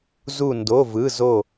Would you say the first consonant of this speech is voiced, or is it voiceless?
voiced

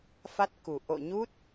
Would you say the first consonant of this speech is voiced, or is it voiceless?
voiceless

